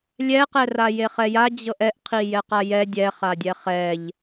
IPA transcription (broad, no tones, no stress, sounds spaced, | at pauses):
lʲ ɛ q ɛ r a j e χ ɛ j a d͡ʑ ɤ ʔ ɛ ʔ qʰ i j ɛ q a j ɛ dʲ ɛ χ a dʲ ɛ χ ɛ ʎ